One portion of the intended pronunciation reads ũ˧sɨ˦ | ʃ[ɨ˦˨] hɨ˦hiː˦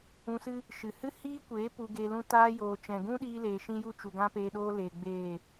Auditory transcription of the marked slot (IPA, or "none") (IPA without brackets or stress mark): ɨ˨